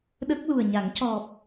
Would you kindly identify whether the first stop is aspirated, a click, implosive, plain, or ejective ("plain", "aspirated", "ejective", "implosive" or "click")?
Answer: implosive